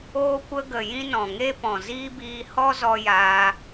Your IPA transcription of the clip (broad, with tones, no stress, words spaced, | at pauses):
oː˧kʷə˧ɡə˨ jĩ˧nɔ̃˨ŋe˧pɔ̃˨ ziː˦biː˧ hɔ˦zɔ˧jaː˧